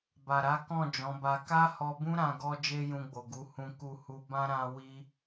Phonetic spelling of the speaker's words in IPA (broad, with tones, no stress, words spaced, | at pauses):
ba˨ɾa˨˦kɔ̃˦˨ d͡ʒɔ̃˨˦ba˧ ka˦hɔ˧bũ˦ɾã˧ ɡɔ˦ d͡ʒe˦jũ˧ɡ͡bo˨ ɡu˨˦ hũ˧ku˧hu˧bã˦ ɾã˦ wi˦